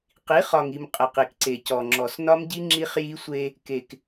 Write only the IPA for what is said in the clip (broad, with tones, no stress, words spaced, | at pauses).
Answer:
qi˨˦χɒ˨ŋi˨m qʼə˨qi˨kǀe˨ cɔ˨ŋ͡ǁɔ˨snɒ˦mɟi˦ ŋ͡ǁi˦χji˦sʷe˦ | ke˨k